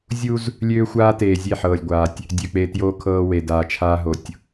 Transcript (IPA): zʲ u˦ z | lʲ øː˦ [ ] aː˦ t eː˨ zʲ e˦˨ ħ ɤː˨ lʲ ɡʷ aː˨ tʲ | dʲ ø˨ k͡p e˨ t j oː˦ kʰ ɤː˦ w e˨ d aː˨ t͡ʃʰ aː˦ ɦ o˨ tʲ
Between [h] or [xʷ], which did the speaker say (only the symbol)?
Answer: xʷ